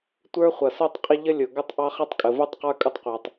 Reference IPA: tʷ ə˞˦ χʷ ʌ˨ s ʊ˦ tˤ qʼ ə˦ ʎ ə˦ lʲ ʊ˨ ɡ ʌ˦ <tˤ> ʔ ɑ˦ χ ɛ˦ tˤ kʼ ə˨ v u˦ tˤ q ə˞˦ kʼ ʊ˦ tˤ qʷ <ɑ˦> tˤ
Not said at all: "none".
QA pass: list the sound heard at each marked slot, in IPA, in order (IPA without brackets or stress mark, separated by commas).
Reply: tˤ, ɑ˨